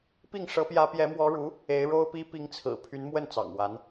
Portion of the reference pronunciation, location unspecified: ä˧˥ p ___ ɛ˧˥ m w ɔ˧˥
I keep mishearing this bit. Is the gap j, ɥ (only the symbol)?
j